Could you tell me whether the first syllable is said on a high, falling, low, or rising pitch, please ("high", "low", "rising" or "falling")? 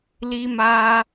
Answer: high